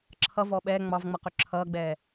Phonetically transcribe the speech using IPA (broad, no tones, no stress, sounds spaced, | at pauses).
ǁʰ ʌ v ɔ ɓ ɛː ŋ͡m ɑ v ŋ͡m ʌ q ø ǁʰ ʌː ɡ͡b ɛː